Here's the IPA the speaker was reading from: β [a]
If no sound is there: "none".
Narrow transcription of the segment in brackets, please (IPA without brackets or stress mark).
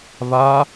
a